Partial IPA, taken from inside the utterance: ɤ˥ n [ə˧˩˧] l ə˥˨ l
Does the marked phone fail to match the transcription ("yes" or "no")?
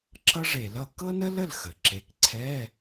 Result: yes